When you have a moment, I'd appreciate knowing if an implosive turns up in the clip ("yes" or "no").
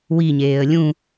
no